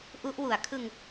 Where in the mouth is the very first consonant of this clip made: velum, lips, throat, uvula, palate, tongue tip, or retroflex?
throat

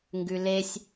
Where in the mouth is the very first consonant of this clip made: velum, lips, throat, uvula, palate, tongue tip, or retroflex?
velum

